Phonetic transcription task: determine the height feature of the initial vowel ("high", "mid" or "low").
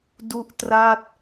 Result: high